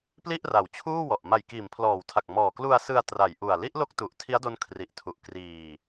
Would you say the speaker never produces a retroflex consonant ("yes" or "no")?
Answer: yes